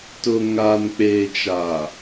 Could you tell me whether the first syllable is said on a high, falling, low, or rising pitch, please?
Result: low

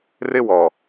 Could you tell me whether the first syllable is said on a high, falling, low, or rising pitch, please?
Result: high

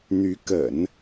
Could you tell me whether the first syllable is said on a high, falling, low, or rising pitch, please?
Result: rising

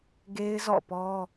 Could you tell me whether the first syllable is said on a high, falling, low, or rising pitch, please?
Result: high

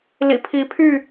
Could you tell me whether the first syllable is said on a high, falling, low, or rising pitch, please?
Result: low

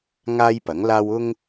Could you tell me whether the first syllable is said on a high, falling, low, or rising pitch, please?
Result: high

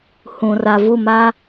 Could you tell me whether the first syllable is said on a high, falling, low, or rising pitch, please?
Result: low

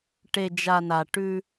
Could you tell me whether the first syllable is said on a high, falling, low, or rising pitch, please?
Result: low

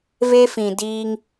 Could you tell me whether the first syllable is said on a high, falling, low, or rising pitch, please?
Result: high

